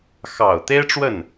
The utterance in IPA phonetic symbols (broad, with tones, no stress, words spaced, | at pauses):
xɑ˨˩ʊ̯ t̪e˥ɪ̯ʈ͡ʂwə˥˩n